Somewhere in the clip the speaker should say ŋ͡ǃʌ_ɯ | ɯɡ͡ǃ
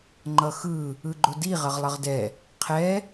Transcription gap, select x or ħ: x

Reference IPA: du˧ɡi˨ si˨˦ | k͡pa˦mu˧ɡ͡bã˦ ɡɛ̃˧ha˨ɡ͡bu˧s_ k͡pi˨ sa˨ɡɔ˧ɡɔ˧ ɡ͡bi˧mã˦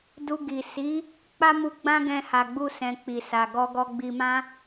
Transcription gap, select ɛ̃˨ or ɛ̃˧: ɛ̃˨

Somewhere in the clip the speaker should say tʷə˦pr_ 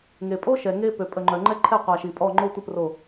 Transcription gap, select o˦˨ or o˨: o˦˨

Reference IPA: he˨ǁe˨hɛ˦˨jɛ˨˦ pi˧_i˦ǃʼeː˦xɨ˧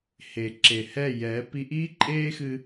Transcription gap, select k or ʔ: ʔ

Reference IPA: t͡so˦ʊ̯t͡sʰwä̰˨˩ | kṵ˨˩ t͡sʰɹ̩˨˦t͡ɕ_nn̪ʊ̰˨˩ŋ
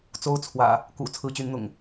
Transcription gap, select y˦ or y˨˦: y˨˦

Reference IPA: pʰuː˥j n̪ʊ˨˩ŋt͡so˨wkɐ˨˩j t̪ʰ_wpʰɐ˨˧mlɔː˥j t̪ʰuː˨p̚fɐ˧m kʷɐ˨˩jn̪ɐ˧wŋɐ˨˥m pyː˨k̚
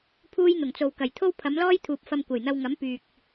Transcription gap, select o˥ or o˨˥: o˥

